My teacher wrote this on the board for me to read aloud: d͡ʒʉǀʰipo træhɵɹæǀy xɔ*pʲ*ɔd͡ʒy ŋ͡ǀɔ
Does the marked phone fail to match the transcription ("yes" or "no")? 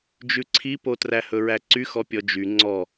no